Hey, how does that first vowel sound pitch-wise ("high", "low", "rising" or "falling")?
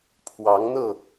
rising